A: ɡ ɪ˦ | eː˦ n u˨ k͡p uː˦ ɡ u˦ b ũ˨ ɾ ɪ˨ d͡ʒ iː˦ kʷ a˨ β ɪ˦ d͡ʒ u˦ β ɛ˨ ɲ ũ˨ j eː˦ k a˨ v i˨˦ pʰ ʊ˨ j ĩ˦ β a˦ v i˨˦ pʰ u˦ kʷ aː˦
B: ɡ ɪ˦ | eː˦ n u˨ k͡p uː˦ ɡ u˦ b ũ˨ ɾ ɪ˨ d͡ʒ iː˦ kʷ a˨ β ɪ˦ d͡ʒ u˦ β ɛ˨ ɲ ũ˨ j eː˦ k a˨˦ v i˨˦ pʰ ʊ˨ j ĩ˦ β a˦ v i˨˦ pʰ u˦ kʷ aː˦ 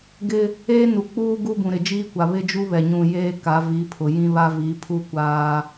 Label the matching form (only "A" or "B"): B